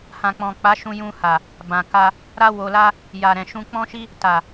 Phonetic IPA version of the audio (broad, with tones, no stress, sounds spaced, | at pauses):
h ã˨ k͡p ɔ̃˨ k͡p a˨˦ ʃ ũ˧ j ũ˧ h a˨ | b ã˨ k a˧ | ɾ a˦ w o˧ l a˦ | j a˨ ɾ ɛ̃˨ ʃ ũ˧ k͡p ɔ̃˦ ʃ i˦ | t a˨